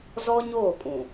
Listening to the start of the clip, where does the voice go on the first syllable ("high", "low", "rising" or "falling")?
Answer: high